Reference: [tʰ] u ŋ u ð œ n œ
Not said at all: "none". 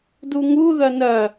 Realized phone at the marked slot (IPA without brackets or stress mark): d